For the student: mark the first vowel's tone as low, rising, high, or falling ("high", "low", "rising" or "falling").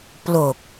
low